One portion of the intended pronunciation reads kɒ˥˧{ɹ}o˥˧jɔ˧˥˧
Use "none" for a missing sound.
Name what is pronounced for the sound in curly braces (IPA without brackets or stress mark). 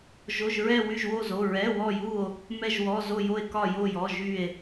j